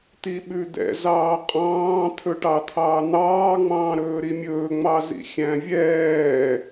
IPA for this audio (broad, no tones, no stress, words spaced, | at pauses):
t̪iɓʉd̪ɛ̰ zɑːqʼɑ̃ː t̪ʰɵʈɑt̪ʰɑːn̪ɑː ŋ͡mɑ̃ːɾɵːɾimʲɵː ŋ͡mɑzḭxʲæ̃vʲɛː